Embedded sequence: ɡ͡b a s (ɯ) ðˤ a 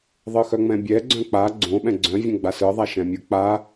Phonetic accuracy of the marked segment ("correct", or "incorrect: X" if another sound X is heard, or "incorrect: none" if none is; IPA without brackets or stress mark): correct